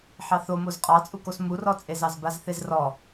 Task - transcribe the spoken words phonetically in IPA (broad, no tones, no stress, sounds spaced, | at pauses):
ħ ɑ θ o m o z qʼ ɑ t͡sʼ u k o s m u r ɔ t͡sʼ e z ɑ z b a z θ e z r ɔ